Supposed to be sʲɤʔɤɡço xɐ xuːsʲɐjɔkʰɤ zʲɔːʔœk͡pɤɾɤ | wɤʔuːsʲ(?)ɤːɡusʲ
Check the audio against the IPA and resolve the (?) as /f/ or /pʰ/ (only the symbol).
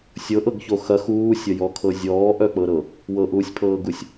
pʰ